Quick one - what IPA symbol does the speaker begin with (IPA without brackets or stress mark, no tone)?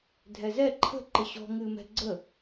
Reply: dʱ